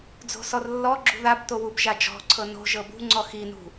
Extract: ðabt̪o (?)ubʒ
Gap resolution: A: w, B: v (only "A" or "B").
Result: A